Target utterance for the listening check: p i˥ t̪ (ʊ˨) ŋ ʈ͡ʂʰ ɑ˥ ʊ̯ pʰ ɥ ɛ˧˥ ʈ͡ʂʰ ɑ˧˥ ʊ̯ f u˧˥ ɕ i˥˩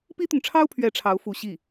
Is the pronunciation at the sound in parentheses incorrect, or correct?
correct